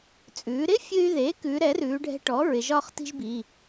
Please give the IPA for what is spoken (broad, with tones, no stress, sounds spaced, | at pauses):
t͡sʼ ʉː˩˧ ɾ ɪ˥ fʲ ɨ˧ y̯ ð e˩˥ k ʉ˩˧ ɾ ɛ˩˥ r ʉː˩˧ ɖʱ ɛ̤˧ ʈ ɔ˩˥ ɹ ɪ˩˧ ʒ ɒː˥ χ t i̤˥ ʒ b i˩˧˩